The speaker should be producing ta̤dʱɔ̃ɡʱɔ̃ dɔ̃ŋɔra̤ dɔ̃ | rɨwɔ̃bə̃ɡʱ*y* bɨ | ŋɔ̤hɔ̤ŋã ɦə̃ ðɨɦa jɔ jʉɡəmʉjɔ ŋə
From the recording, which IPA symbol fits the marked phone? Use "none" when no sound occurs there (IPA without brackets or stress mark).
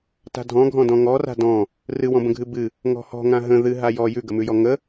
ɨ